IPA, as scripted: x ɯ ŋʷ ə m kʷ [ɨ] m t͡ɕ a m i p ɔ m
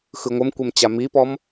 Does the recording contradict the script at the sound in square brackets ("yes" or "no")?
yes